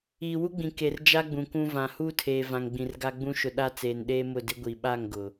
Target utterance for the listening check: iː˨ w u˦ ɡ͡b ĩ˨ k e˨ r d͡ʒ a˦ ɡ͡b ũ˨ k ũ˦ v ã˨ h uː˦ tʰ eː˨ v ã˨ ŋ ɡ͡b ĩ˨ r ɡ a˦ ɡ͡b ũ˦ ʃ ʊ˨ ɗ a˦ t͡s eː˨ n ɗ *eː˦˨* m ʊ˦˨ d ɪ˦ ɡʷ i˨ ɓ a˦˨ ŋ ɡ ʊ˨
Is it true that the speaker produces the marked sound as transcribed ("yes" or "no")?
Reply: no